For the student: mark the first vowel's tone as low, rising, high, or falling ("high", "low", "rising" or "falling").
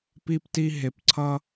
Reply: high